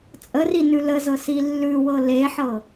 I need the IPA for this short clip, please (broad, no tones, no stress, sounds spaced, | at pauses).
t͡sʼ ə r i n ʉ l ə z ɤ s i lː ʉ w ɤ l e ħ ɤ